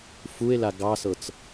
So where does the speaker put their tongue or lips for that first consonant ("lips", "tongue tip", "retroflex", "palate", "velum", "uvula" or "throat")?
lips